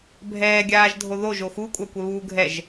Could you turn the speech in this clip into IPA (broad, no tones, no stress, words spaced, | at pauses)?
bʱɛːɡʲaːʒdʱo ðoʒo xukʷʼakʷɛβuː ɡʱɛʒ